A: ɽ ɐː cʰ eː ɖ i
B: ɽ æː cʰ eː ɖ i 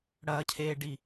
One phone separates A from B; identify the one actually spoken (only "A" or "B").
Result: A